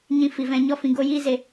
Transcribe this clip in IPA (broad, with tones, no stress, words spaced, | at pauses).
ɲĩ˦ fi˧vɛ̃˧ɲɔ˦ fĩ˧ɡo˦jiː˦ze˧